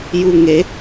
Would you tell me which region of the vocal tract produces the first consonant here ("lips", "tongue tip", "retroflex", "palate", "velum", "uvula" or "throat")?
palate